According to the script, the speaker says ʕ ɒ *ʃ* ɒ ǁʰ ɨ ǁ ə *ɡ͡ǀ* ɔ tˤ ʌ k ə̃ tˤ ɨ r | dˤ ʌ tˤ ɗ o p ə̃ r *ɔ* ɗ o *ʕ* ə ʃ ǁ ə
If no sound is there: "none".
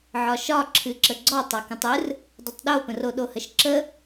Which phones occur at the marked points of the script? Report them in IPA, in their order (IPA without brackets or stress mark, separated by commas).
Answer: ʃ, ɡ͡ǀ, o, h